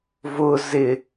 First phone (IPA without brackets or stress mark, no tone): v